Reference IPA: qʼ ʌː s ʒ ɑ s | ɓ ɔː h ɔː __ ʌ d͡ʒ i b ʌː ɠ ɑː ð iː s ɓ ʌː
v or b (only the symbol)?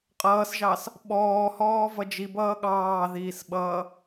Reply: v